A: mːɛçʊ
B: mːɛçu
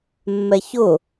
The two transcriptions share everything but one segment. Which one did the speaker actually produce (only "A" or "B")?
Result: A